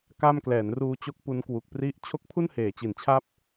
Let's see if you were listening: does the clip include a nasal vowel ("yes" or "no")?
no